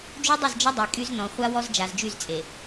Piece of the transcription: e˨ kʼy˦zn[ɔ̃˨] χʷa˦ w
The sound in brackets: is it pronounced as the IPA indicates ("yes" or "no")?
yes